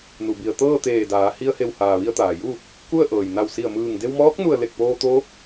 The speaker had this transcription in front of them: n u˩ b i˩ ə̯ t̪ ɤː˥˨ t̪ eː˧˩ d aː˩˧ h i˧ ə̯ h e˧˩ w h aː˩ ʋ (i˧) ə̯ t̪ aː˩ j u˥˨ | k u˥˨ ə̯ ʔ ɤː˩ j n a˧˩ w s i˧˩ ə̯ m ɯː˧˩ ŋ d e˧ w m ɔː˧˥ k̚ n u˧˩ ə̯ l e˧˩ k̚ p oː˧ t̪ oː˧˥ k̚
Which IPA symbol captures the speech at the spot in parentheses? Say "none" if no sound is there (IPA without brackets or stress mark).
i˧